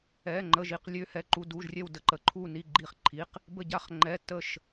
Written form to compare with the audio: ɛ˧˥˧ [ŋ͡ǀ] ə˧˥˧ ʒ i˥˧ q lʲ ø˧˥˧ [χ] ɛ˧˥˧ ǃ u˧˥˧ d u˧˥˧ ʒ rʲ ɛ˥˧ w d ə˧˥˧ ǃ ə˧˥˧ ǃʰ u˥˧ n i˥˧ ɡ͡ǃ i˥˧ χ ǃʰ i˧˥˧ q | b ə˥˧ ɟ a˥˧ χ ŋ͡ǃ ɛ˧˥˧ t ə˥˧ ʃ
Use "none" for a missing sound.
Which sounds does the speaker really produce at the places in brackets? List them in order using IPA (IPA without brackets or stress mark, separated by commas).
ŋ͡ǃ, h